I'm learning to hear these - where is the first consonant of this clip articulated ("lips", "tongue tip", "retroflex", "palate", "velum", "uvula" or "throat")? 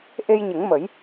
throat